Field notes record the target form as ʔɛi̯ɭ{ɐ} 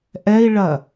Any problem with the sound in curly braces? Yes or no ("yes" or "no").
no